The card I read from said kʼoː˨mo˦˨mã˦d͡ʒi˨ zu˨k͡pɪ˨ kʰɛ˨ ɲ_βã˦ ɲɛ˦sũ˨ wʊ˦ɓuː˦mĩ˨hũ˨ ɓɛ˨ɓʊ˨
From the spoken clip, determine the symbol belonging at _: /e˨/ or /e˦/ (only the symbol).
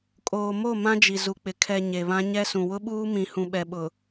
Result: e˨